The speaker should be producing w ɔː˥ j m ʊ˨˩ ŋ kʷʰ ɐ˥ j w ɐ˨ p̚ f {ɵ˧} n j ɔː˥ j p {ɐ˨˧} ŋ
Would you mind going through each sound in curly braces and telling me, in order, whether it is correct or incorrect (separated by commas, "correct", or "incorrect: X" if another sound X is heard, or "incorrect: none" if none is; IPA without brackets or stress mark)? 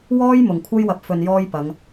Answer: correct, correct